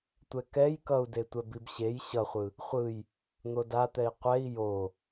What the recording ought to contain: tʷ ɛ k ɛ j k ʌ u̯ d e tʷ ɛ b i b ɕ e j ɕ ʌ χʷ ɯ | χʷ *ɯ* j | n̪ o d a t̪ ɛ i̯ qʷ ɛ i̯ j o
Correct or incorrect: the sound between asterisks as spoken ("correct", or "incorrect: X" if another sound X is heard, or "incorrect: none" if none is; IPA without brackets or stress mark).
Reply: correct